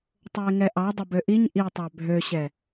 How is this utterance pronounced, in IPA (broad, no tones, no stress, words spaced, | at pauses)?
tˤoɪ̯ŋɛʔɑ dˤəbøʔiɲ ʔitˤɑ bʱøɕɛ